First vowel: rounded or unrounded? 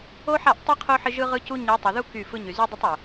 rounded